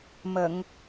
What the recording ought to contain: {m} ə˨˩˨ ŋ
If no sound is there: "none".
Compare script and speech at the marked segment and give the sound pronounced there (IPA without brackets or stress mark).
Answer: m